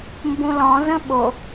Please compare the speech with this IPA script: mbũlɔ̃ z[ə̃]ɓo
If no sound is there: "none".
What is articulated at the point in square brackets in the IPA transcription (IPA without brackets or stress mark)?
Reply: ə̃